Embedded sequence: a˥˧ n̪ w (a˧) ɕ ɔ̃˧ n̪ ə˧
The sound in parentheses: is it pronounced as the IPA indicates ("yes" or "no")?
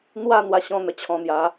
yes